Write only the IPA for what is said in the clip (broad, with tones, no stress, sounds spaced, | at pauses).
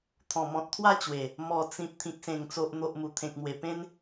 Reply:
t̪ʰ ɔ̃˨˩ m ɔ̃˨ t̚ t̪ʰ w a˥˧ t͡ɕ w e˨˩ | m ɔ˨˩ t͡s ĩ˨ p̚ t̪ʰ ĩ˨ k̚ s ẽ˨˩ ŋ t͡s o˨ ʔ n̪ o˨ ʔ m u˨˩ t̪ʰ ẽ˨ k̚ m w e˨˩ p ẽ˧ n